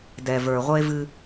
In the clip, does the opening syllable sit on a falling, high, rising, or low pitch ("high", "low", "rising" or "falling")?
low